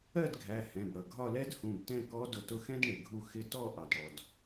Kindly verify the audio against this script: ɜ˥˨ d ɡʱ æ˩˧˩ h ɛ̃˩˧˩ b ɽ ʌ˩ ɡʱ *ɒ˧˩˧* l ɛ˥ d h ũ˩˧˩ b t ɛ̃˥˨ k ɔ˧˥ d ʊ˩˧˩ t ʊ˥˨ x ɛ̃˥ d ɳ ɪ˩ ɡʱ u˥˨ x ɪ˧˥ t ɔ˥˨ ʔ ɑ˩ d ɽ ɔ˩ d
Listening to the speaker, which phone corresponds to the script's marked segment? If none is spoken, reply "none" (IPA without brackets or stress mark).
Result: ɒ˥˨